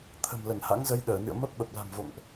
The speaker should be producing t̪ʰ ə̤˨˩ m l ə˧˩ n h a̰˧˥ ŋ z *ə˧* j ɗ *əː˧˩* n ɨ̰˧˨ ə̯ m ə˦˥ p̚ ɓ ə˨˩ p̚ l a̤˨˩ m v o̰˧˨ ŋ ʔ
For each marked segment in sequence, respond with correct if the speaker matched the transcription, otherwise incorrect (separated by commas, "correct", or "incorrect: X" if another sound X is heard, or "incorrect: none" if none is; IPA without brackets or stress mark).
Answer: correct, correct